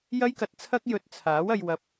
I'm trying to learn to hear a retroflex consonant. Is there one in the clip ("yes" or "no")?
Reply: no